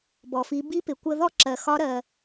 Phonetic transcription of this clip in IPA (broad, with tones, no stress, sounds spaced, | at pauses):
b ɔ˩ f i˩˧ b i˧˥ p ɪ˩ kʷ ə˧ ð ɔ˥ ǁ ɜ˩ x ɒ˧˥ ɾ ɜ˩